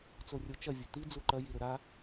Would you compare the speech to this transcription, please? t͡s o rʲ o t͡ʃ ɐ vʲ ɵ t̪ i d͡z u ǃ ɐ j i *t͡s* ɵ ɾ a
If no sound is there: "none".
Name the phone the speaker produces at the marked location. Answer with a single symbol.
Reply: ɾ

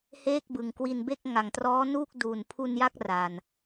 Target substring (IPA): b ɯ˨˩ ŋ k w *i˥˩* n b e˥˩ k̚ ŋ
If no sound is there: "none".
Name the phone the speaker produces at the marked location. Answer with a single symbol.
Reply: i˧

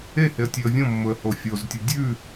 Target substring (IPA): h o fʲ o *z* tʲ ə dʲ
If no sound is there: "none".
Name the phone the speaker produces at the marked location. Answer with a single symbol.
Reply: z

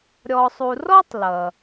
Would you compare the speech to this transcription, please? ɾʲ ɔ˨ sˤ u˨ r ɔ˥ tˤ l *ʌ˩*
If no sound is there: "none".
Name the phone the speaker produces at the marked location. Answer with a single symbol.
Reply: ʌ˩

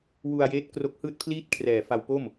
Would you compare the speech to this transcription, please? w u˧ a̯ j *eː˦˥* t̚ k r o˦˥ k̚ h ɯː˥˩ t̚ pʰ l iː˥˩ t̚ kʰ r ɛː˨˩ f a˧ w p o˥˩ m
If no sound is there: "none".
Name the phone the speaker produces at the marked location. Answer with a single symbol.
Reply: eː˦˥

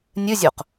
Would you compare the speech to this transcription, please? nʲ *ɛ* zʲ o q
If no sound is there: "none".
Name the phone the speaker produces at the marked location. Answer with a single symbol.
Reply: ɨ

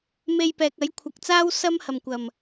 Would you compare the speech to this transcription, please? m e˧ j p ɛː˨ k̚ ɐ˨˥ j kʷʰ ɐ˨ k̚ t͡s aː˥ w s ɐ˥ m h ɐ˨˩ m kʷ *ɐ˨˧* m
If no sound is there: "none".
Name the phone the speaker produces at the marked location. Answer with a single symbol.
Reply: ɐ˨˩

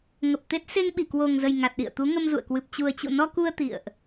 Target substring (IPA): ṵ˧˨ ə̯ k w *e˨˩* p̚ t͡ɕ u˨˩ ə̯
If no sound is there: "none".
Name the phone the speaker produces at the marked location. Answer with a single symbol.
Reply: ɨ˨˩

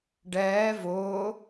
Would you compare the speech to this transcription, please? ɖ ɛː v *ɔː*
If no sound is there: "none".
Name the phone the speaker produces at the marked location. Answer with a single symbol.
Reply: ʊː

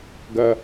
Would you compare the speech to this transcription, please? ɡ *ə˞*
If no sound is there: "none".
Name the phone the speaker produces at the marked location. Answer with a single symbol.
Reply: ɐ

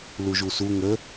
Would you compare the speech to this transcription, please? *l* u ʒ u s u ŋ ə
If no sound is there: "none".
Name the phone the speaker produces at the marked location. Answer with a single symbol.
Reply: l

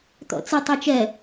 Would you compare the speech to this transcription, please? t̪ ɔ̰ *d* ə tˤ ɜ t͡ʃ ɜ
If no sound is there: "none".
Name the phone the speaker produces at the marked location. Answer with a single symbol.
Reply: t͡s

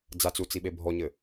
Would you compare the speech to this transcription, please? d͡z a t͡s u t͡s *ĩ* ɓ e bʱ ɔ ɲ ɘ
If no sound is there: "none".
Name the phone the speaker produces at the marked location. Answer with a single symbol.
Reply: i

